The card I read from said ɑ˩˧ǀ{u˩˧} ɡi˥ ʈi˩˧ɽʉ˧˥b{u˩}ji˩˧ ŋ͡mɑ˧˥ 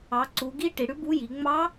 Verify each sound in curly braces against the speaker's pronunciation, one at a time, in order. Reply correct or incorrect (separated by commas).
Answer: correct, incorrect